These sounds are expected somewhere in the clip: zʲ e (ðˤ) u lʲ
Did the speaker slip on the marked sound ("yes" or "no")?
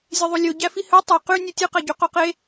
no